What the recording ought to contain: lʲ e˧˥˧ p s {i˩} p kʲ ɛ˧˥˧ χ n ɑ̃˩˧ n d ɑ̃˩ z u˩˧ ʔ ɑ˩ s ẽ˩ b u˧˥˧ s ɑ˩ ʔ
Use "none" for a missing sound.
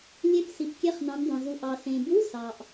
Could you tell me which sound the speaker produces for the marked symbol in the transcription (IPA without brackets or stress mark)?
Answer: i˩